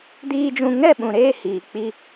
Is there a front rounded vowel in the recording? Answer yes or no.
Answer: no